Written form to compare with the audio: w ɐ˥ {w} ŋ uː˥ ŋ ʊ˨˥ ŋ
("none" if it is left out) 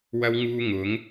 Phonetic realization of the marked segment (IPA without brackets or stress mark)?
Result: w